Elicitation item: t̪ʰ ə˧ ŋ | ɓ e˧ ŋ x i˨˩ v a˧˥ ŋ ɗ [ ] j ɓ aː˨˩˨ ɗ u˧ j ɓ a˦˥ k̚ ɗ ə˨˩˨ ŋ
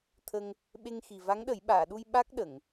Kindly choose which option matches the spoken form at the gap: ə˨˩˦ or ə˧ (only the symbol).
ə˨˩˦